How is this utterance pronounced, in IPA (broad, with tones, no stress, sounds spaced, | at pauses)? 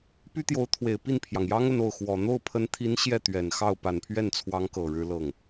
p y˥ t̪ j o˧˥ ʊ̯ t̪ʰ w e˨˩ ɪ̯ p i˥˩ n pʰ j ɑ˩ ŋ j ɑ˥ ŋ ə˥˧ n o˥˩ ʊ̯ x w ɔ˨˩ n̪ o˥˩ ʊ̯ pʰ ə˧˥ n t̪ʰ i˧˥ n ɕ j ɛ˥˩ t̪ ɥ ɛ˨˩ n x ɑ˥˩ ʊ̯ p a˨˩ n pʰ ɥ ɛ˥˩ n t͡sʰ w ɑ˧˥ ŋ k ɤ˨˩ ɻ ɻ̩˥ l ɤ˥˩ ŋ